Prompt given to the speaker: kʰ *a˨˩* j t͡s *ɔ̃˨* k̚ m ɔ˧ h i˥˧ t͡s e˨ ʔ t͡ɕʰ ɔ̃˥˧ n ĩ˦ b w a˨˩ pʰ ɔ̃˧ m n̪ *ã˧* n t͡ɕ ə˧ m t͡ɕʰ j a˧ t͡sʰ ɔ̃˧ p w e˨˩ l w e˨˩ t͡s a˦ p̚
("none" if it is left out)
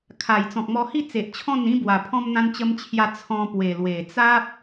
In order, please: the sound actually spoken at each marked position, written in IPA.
a˨˩, ɔ̃˨, ã˧

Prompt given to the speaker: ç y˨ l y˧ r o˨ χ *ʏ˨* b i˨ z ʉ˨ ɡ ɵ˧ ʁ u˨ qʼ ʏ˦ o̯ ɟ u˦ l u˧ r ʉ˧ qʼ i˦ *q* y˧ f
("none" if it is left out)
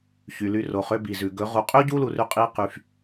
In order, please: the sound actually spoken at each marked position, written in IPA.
ʏ˧, q

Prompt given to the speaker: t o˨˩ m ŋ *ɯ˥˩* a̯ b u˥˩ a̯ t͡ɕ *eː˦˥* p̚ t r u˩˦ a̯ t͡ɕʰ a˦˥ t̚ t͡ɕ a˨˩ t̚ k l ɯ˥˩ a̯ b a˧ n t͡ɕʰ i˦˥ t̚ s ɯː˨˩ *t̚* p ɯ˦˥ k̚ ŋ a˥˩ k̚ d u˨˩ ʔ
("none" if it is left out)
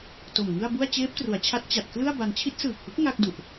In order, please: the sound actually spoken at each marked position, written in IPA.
ɯ˥˩, eː˦˥, k̚

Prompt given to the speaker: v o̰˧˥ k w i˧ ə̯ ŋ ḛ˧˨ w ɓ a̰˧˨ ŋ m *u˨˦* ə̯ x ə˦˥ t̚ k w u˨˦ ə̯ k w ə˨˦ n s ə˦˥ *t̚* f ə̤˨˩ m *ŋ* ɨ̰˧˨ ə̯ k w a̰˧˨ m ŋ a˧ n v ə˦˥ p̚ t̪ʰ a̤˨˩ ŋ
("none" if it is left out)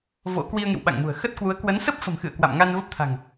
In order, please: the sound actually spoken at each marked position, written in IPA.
ṳ˨˩, p̚, x

